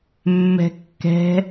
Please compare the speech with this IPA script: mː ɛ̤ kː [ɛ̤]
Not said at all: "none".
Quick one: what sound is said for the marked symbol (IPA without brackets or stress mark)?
ɛ̤